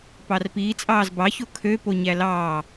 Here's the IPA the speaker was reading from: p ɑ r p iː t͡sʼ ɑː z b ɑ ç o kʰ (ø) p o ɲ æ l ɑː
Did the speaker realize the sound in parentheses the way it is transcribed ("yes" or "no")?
yes